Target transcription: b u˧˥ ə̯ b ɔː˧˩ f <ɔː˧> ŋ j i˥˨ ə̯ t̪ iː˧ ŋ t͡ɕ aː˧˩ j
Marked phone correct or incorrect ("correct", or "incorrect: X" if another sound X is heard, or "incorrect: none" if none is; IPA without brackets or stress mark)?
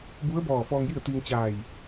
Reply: correct